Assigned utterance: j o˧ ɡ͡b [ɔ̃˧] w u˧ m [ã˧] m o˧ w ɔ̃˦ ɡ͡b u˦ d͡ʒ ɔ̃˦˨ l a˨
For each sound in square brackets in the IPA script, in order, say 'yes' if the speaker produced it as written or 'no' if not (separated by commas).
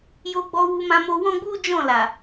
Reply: no, yes